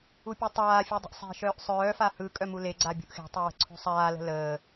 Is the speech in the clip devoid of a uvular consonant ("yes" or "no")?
yes